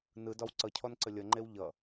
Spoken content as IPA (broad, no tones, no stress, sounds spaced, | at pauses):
n ɯ d ɒ w ǀ ʌ cʰ ɔ n ǀ ə lʲ ʌ ŋ͡ǃ e w ʎ ʌ